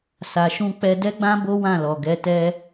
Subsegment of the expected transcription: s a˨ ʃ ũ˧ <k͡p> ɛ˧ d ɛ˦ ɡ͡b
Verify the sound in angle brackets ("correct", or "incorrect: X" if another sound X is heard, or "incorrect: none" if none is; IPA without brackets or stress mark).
correct